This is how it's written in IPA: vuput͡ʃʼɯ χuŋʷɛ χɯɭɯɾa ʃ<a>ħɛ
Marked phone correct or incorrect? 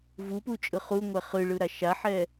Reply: correct